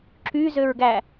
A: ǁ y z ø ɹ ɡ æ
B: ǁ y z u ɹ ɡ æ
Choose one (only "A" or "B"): A